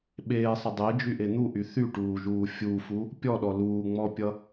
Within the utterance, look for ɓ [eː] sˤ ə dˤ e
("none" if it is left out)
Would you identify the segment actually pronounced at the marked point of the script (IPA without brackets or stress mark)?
eː